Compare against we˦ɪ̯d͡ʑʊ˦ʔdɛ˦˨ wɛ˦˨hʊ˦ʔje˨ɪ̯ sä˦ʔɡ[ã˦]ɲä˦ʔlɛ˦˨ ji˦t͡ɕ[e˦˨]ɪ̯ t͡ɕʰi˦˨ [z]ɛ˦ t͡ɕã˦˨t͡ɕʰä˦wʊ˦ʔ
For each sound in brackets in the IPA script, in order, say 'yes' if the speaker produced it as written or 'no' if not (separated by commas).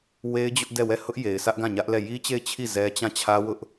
no, yes, yes